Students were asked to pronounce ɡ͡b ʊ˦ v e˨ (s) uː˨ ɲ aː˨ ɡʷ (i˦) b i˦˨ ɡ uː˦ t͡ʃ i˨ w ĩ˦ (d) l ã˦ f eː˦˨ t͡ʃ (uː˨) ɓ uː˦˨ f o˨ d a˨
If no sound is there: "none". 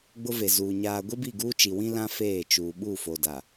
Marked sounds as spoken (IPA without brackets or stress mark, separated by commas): z, i˦, none, uː˨